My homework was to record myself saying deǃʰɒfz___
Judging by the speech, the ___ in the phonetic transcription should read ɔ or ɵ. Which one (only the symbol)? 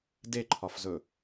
ɵ